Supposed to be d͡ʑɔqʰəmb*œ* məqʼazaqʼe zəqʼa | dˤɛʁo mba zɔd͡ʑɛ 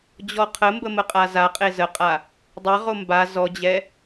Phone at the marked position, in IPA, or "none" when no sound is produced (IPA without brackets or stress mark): ə